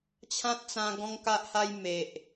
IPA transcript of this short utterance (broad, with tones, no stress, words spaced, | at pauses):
t͡ɕʰã˦t̚t͡sã˧ ɡɔ̃˦ŋka˦ʔha˦j me˨ʔ